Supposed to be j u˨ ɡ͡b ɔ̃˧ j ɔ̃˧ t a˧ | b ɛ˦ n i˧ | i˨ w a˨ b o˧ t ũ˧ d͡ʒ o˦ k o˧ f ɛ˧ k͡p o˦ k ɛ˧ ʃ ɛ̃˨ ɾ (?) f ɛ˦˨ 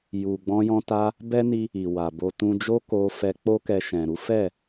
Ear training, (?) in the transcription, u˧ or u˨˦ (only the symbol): u˨˦